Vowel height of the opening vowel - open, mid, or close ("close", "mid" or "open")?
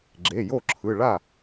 mid